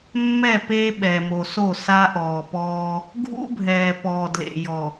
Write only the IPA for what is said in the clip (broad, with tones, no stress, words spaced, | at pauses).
mːɛ˦˨pe˦ɓɛ˨mo˨ so˦˨sa˦ʔɔː˨pɔː˦ | ɡʱṵ˦bʱɛː˨pɔː˨ dlḛ˨jɔ˨